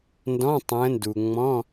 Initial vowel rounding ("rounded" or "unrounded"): rounded